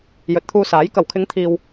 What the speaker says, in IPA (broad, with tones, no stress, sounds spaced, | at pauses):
j ɵ˨˥ t̚ t̪ʰ uː˧ s aː˨˥ j k ɐ˨˩ w kʰ ɪ˨˧ ŋ t̪ʰ iː˨ w